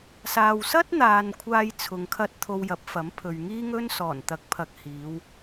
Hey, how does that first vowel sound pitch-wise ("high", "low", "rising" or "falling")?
low